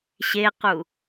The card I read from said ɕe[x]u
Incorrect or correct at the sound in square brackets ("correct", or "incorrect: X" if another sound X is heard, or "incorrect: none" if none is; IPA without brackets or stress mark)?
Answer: incorrect: q